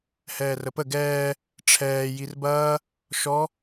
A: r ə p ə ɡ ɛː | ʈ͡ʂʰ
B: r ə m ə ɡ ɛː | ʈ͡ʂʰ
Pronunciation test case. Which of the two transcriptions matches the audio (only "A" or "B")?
A